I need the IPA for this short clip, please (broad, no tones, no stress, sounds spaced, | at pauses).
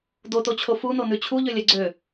d o t o t͡ɕʰ o f u n o n ʉ t͡ɕʰ u ʎ ø lʲ ɛ ɡ͡ǀ ø